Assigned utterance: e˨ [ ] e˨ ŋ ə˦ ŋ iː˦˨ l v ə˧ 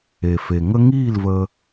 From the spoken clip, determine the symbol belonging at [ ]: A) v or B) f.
B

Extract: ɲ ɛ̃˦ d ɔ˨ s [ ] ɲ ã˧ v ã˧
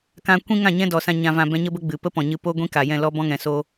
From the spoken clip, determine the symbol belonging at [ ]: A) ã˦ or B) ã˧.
B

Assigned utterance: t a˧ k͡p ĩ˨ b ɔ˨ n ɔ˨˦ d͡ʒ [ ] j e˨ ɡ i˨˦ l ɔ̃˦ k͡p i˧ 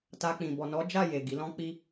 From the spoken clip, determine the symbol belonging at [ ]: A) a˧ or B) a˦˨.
B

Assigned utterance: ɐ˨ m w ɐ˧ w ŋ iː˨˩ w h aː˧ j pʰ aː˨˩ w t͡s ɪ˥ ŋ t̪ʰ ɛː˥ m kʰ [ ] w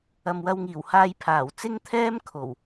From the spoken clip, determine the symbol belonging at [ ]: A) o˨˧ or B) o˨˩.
B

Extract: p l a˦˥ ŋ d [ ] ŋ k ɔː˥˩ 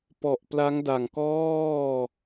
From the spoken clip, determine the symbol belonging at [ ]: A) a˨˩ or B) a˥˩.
A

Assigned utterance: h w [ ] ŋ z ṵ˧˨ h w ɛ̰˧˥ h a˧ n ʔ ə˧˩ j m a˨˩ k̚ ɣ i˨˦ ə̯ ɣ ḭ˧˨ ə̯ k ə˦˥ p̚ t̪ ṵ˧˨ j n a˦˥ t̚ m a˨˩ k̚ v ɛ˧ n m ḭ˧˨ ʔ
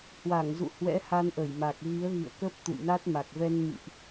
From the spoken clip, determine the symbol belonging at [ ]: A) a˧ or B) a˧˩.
B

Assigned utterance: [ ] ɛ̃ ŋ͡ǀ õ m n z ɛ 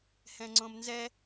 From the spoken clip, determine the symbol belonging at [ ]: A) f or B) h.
B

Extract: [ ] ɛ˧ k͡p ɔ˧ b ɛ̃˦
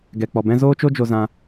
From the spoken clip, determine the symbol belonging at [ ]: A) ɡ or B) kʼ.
A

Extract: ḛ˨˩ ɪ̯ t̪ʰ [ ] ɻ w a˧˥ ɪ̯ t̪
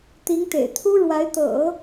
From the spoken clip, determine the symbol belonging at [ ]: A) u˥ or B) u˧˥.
A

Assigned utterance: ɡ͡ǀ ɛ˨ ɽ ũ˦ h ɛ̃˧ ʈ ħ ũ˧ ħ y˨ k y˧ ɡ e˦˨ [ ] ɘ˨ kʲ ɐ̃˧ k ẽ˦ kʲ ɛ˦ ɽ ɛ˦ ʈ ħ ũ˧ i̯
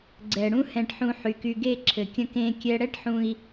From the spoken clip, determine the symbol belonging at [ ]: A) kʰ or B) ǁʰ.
B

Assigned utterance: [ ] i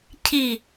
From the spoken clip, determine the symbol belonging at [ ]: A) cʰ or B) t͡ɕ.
A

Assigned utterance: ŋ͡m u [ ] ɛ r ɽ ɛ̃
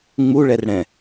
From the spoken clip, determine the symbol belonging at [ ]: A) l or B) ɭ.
B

